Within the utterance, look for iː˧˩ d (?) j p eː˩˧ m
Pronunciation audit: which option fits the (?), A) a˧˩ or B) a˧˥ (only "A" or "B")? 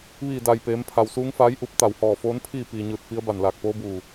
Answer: A